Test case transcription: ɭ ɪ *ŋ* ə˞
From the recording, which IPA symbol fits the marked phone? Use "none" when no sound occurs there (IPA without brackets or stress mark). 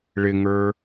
ŋ